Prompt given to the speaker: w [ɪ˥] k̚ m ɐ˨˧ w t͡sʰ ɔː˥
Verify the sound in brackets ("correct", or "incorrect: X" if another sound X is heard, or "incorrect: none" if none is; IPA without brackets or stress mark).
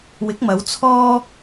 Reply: incorrect: ɪ˨˥